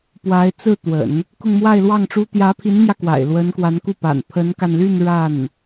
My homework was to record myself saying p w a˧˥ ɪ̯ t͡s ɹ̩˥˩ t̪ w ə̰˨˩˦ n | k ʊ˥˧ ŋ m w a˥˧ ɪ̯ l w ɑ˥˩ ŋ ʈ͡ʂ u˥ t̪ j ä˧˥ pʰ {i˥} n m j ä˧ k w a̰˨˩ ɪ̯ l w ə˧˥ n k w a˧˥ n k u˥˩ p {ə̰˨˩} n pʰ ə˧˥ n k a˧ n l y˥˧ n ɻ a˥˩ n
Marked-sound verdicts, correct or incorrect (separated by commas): incorrect, incorrect